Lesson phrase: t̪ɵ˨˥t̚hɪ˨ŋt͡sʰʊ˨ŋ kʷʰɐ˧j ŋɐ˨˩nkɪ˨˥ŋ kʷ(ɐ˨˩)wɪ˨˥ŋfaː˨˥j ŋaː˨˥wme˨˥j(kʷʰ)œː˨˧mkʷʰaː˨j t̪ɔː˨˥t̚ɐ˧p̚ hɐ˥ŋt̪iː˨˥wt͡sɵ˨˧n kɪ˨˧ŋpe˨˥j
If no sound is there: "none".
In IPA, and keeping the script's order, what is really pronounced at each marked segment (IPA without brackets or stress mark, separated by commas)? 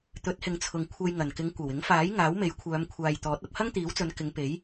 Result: ɐ˨˩, kʷʰ